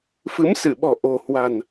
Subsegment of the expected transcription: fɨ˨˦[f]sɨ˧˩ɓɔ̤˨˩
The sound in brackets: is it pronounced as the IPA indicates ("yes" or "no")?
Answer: no